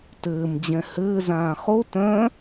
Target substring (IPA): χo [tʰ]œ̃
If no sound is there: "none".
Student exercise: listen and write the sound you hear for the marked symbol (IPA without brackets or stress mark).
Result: t